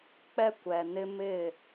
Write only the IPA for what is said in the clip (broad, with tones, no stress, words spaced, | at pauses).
k͡pɛ˦kʷɛ˨nɪ˦ mɪ˦˨